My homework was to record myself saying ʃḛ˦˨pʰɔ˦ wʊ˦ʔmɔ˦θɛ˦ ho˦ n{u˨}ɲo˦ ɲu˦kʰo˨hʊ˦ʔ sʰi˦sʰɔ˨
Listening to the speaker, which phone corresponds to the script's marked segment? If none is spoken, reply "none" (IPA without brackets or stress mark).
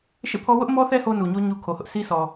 u˨